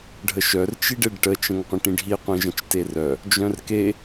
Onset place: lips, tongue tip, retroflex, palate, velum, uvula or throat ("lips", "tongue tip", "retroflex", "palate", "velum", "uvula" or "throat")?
retroflex